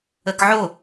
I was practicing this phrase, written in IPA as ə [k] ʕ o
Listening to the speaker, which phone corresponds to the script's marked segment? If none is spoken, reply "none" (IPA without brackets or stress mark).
k